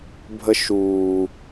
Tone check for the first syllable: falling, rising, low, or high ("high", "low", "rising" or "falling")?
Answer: high